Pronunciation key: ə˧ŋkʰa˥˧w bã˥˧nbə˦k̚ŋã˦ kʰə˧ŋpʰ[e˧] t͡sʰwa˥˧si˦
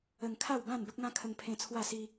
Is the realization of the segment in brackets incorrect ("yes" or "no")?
yes